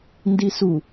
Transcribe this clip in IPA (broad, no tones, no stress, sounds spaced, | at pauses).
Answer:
n d i s u